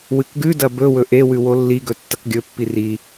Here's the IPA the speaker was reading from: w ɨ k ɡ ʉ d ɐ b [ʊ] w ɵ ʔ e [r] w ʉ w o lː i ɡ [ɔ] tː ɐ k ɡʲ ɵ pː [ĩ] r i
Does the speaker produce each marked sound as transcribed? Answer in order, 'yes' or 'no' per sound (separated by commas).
no, no, no, no